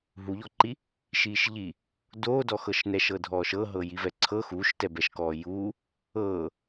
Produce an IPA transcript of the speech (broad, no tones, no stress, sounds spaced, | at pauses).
ɦ u ʎ ɔ ǃ i | ʃ iː ʃ ʎ i | d oː d ɔ x ɤ ʃ n ɛ ʃ ɤ dʱ ɔː ʃ ɤ ɦ ɤ j i v ɛ ǀʰ ɤ x uː ʃ t ɛ b ɛ ʃ k ɔː j uː | ɤː